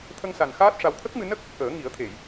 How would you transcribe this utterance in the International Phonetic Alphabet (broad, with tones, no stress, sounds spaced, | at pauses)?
t̪ʰ ə˧ ŋ s a˨˩ n x aː˦˥ t̚ ʂ a˧ w t̪ʰ ə˦˥ k̚ m ɨ˧ n ə˦˥ k̚ | ʔ əː˨˩˦ ŋ i˨˩˦ ə̯ t̪ʰ e˨˩˨ j